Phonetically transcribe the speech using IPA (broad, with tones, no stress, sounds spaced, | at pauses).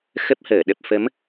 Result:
x ə˦˥ p̚ h əː˧˩ ɗ ə˨˩ p̚ f ə˨˦ m